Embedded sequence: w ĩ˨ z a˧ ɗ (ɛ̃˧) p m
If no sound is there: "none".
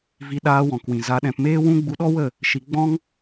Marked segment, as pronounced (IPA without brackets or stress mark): ɛ̃˧